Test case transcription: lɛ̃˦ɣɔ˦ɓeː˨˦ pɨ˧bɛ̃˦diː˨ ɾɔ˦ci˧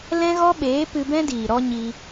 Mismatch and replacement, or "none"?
c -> ɲ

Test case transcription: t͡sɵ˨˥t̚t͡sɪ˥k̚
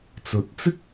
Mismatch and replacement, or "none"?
none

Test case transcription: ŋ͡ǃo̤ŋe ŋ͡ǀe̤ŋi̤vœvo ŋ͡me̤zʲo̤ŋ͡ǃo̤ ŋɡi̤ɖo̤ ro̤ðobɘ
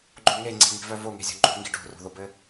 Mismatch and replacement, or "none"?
ŋ͡m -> ŋ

